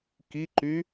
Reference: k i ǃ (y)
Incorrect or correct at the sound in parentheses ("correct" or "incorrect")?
correct